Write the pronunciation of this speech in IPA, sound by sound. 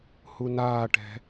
h u n aː ʈ ɛ̤

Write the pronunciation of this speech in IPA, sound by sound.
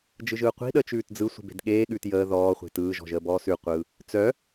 d͡ʒ ɯ ʒ ɯː qʷ i̤ ɗ əː t͡ʃ ʉː t d͡z ɯ sʷ i̤ b e̤ d ɠ eː ɠ ʉː t j əː ð ɔː χʷ e̤ t ɯː ʒ ɔ̤ ʒ əː b ɔː s ʉ qʷ ɯ | t͡s œ

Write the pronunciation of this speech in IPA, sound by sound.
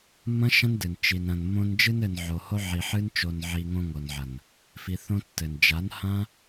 mː ɐ̃˦ ʃ ɐ̃˦ n d ɨ˨ n t͡ʃ i˨ n ɾ ɐ̃˨ n mː õ˧ n d͡ʒ ɨ˧ n ɘ˨ n ʕ o˨ h o˧ ʕ i˨ ħ ɨ˦ n t͡ʃ o˧ n ʕ i˧ ŋ õ˧ ŋ o˨ n ʕ ɐ˨ n | f i˧ θ õ˦ tː ɘ˨ n d͡ʒ a˨˦ n h ã˦

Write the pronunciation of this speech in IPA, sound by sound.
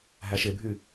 ɦ æ ʃ e bʱ y

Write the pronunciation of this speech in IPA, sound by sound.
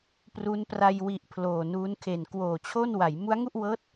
p r u˦˥ n p r a˧ j w i˨˩ ʔ pʰ l oː˨˩ n uː˦˥ n kʰ e˨˩ n k w oː˨˩ t͡ɕʰ o˥˩ n w a˩˦ j m u˦˥ a̯ ŋ u˥˩ ʔ w ɤː˦˥ t̚

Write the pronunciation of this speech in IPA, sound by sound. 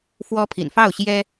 f w ɔ˥ pʰ ḭ˨˩ n f ɑ˥˩ ʊ̯ ɕ j ɛ˥

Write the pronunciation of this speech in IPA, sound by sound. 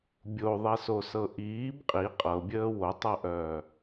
bʲ o ðˤ i s o s ɤ ʔ iː b qʼ i qʼ ɤ bʲ əː w o tˤ ɤ ʔ œː

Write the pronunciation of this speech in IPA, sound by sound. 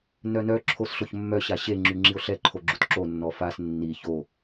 n œ n œ ǁʰ o s ɬ o ç mː œ ɕ a ɕ e ŋ͡ǁ y ŋ͡ǁ i o̯ ɬ ɛ ǃʰ o ɡ͡ǁ u t ǁ o nː ɔ f a s nː i ç o

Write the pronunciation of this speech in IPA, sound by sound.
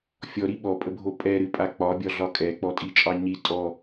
fʲ ɔ ɾ i ɓ ɔ pʼ ə bʱ o pʼ ɛ ɾ ɨ pʼ a k͡p ɒ bʲ ɒ ɮ ɒ kʼ ɛ k͡p ɔ tʼ i t͡ʃʼ ɑ ɲ i tʼ ɔ

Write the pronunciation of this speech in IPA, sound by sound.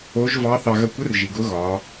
o˧˥ ʒ v ɑ˧˥ θ ɑ˧ ɣ ɐ˧ kʷ ə˧˥ r ʒ i˩ ɡ ʊ˧˥ ɣ ɒː˩˧

